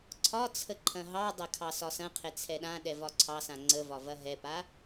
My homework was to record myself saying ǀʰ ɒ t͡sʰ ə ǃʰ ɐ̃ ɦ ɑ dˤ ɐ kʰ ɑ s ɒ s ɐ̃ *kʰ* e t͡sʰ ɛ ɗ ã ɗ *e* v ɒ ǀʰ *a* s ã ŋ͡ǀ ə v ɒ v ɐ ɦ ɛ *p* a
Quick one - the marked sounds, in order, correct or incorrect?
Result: incorrect, incorrect, incorrect, correct

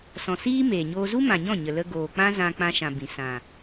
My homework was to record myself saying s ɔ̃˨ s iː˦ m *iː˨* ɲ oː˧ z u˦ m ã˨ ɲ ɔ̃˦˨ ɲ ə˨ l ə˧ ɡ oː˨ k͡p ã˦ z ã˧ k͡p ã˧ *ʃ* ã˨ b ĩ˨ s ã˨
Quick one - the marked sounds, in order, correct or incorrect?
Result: incorrect, correct

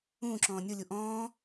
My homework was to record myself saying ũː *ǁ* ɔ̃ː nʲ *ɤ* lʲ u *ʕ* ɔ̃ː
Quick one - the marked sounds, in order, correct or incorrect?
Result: correct, incorrect, incorrect

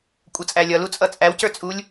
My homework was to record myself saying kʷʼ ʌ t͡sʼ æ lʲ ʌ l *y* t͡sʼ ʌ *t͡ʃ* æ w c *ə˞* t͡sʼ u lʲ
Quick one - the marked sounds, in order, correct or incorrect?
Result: incorrect, incorrect, correct

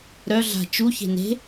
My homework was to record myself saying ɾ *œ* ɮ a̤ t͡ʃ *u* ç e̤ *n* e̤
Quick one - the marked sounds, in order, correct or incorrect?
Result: correct, correct, correct

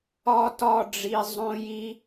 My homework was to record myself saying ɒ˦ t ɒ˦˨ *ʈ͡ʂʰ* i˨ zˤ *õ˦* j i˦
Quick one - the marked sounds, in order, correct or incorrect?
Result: incorrect, correct

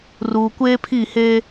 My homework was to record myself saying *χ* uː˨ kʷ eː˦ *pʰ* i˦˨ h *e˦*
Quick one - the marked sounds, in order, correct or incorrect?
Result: incorrect, correct, incorrect

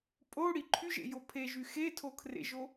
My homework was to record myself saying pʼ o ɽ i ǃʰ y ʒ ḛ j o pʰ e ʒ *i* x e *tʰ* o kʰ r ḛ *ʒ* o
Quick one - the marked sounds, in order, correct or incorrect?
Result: incorrect, correct, correct

